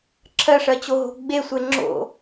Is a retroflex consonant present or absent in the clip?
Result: present